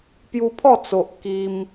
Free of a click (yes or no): yes